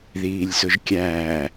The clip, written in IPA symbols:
ð iː lʲ s ʊ ʒ kʲ æː

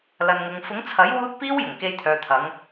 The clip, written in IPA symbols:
l ɐ˨ n ŋ ʊ˨ ŋ f ʊ˨˥ ŋ t͡sʰ ɐ˨˥ j w uː˧ t̚ p iː˥ w j ʊ˨˩ ŋ k e˧ j t̪ʰ œː˨ t̪ʰ ɐ˨˧ ŋ

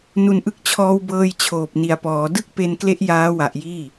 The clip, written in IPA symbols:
n u˨˩ n ʔ ɯ˦˥ k̚ t͡ɕʰ ɔː˧ w b ɤː˧ j t͡ɕʰ oː˨˩ p̚ n i˨˩ a̯ p ɔː˩˦ d ɯ˥˩ k̚ p e˧ n k l e˦˥ ʔ j aː˦˥ w a˨˩ ʔ j iː˥˩

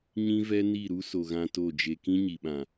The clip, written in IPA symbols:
ɲ ĩ˦ v ɛ˦ n i˦˨ ɾ u˦ s o˨ ɣ ã˧ t o˦˨ d͡ʒ e˧ k ĩ˦ ɲ i˨ ɓ ã˨

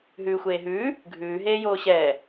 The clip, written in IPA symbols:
ɦ ʉː xʷ eː ɦ ʉː | ɡʱ ʉː ɦ eː j oː ɕ ɛː

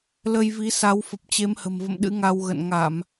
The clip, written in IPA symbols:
l ə˧ j v i˨˦ s a˨˦ w f ə˨˩ p̚ t͡ɕ e˨˦ m h ə̤˨˩ m v ə̰˧˨ m ɗ ɨ̰˧˥ ŋ a˧ w ɣ ə̰˧˨ n ŋ a˧˩˨ m

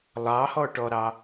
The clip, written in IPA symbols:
lˠ ɑ h ɔ ʈ ɔ ɾ ɑ

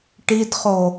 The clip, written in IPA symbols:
ʈ i d χ o

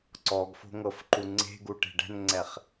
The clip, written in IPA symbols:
ǀ ɔ ɡ f o̤ ŋ ɤ f ǃ u ŋ͡ǀ e̤ ɡ u ʈ e̤ ɖ ɛ̤ n ŋ͡ǀ ɛ χ

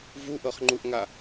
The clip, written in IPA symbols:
v u ʔ ɤ χ ŋ͡ǃ u ʔ ŋ a

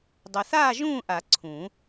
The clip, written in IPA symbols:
dˤ ɐ˨ θ aː˥˨ ʒ ũː˥˨ ʔ a˨˩˦ ǀʰ ũ˨˩˦

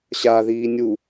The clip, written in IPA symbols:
ɕ a ð iː nʲ u

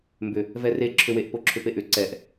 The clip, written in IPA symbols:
m b ʏ | v ɛ r e ǁʰ ʏ w e ʔ p o ǁʰ ʏ p e ʔ ʏ ǀ ɛ ʔ

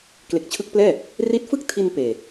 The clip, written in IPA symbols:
k l e˨˩ k̚ t͡ɕʰ ɯ˦˥ k̚ p l ɛː˥˩ | r i˦˥ t̚ f ɯ˥˩ k̚ tʰ i˧ n p eː˨˩

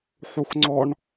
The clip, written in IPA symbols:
ħ u x ŋ͡ǀ ɔ ɳ

